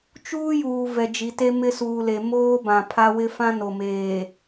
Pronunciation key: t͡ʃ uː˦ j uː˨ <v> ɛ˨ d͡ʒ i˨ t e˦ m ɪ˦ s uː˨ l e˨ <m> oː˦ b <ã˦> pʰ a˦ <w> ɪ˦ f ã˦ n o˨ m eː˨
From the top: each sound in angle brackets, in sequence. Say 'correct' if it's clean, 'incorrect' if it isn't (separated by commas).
correct, correct, incorrect, correct